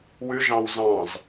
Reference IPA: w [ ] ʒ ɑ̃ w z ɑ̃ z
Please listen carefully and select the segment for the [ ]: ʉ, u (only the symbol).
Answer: ʉ